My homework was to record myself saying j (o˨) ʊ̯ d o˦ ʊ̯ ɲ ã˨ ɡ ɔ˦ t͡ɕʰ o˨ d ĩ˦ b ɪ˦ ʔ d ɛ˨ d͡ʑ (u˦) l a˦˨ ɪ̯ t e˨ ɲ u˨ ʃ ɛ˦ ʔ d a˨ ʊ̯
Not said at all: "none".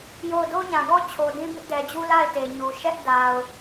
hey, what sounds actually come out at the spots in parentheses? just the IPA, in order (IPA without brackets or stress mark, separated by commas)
o˦˨, u˦